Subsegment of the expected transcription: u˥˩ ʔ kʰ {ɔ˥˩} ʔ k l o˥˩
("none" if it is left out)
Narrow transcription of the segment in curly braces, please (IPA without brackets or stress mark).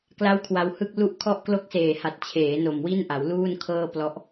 ɔ˥˩